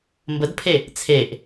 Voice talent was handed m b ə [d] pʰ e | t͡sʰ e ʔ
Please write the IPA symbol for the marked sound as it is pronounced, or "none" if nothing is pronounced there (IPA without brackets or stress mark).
d